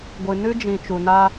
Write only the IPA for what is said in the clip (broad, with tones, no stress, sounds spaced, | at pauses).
ɡʷ ɨ˨ n ɨ˦ d͡ʒ ĩ˨ t͡ʃ u˨ n a˦